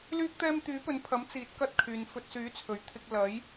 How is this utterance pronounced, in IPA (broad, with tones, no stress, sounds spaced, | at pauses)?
l yː˥ k̚ t̪ ɛː˥ m t̪ yː˨˥ p ɵ˨ n pʰ ɐ˨˥ m t͡s iː˨˥ t̚ k ɐ˥ t̚ kʰ yː˨ n f ɵ˧ t̚ s yː˨˥ t͡sʰ ɵ˨˩ ɥ t̪ʰ ɪ˧ k̚ l ɐ˨˥ j